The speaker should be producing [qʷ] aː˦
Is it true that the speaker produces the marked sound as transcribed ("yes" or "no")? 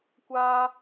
no